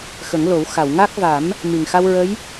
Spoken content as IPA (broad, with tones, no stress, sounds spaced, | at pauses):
x ə˨˩˦ ŋ l o˨˩˦ w x a˨˩˨ w ŋ a˦˥ k̚ v a˨˩˦ m | m i˨˩ ŋ x a˧ w ɹ ə˧˥ j